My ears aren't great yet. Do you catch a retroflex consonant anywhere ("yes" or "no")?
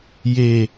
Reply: no